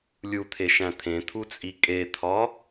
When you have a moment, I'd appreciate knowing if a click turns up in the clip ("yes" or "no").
no